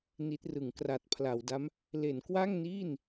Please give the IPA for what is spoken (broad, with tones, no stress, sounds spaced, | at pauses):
n i˦˥ t̚ r ɯ˩˦ ŋ k r a˨˩ t̚ pʰ l a˩˦ w d a˦˥ m | l e˩˦ n k w a˥˩ ŋ n iː˥˩ n